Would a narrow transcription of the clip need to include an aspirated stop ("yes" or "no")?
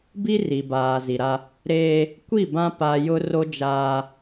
no